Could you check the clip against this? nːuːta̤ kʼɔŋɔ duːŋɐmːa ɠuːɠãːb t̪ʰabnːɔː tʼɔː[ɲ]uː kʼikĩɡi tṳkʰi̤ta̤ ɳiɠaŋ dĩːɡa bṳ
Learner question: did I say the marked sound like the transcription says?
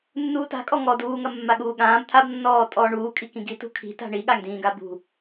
no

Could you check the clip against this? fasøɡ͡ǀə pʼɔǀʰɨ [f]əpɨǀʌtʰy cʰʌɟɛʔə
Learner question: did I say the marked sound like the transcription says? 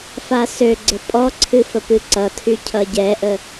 yes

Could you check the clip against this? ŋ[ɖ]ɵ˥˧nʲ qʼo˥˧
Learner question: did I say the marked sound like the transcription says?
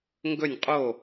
no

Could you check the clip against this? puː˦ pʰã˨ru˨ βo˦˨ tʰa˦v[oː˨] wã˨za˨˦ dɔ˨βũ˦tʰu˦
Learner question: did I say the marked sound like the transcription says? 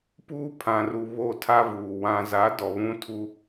no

